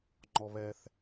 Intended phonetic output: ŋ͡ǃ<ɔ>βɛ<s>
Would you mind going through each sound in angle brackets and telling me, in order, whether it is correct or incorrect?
correct, incorrect: θ

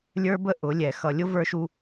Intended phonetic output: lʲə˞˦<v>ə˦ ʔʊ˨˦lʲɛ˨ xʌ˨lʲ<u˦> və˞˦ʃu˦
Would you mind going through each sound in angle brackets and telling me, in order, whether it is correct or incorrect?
incorrect: b, incorrect: ʊ˦

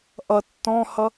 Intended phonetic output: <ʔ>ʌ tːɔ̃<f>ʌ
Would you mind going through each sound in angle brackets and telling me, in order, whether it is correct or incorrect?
correct, incorrect: h

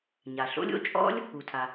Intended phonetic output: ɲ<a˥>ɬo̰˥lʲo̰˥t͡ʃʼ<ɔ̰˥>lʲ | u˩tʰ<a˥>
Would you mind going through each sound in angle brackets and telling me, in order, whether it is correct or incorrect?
incorrect: a˩, correct, incorrect: a˩

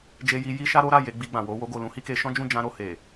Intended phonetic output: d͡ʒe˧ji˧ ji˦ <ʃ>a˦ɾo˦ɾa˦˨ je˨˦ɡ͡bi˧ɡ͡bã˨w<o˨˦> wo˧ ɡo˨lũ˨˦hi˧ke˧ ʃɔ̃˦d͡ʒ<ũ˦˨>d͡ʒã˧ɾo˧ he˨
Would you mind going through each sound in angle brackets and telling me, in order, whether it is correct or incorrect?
correct, correct, correct

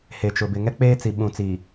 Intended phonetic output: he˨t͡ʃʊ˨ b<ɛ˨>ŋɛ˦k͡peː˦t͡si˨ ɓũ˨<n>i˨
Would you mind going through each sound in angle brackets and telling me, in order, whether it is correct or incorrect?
incorrect: ɪ˨, incorrect: t͡s

